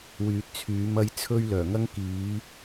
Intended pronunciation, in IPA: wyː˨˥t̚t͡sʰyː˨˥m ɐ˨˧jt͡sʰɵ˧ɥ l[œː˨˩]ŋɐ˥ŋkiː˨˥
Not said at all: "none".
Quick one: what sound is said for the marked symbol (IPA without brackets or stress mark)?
œː˨˩